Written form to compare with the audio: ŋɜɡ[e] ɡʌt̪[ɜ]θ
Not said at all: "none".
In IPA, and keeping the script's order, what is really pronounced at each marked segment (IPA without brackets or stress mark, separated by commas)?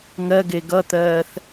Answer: e, ɜː